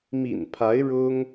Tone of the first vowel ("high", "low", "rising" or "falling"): low